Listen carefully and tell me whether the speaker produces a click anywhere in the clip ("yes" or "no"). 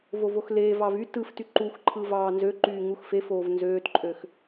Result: yes